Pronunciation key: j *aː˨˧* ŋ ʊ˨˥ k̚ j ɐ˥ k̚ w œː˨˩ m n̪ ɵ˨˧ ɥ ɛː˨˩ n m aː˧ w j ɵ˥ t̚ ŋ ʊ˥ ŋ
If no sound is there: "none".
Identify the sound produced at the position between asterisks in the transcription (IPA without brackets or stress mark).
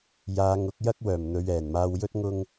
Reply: aː˨˧